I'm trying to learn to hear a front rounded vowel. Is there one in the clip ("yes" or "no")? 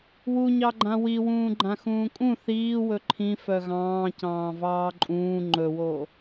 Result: yes